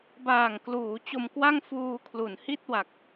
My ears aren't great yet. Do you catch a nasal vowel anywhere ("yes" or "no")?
no